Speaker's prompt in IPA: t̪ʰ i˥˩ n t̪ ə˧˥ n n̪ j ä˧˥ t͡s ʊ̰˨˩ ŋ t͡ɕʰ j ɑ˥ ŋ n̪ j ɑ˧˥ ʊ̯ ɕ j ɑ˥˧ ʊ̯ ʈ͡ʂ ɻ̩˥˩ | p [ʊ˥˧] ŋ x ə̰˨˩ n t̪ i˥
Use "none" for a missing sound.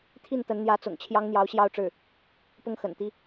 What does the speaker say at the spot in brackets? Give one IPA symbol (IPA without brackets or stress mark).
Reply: ʊ˥